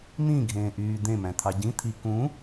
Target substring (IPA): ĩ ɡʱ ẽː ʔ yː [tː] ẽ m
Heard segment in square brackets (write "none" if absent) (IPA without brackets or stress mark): d̪